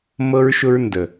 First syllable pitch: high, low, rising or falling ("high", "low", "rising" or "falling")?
high